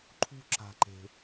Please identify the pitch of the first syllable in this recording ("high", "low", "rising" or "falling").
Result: low